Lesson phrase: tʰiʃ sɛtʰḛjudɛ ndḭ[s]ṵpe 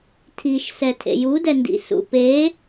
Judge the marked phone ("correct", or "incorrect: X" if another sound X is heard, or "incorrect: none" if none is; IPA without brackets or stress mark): correct